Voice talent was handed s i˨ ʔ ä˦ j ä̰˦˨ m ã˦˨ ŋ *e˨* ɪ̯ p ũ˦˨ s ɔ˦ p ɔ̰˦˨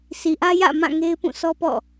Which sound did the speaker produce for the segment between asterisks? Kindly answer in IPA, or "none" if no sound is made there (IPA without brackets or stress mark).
e˦